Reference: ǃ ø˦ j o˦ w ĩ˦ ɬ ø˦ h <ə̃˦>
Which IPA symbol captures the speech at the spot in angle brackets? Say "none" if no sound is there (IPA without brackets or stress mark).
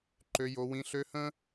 ə̃˦